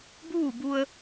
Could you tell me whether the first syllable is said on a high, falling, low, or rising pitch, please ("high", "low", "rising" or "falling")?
falling